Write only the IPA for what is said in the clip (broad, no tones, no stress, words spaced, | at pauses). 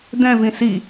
d̪ɛ̃vĩ si